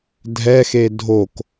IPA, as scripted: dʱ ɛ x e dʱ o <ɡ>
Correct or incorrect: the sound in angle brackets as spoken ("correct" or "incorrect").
incorrect